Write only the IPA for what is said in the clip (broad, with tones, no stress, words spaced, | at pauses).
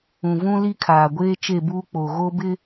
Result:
ũ˨vũ˦li˦ kʰaː˨ɡʷeː˦t͡ʃe˦˨ buː˦k͡po˨ɣo˦bɪ˦